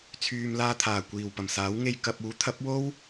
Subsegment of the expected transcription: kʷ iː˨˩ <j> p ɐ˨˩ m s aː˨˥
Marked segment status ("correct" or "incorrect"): incorrect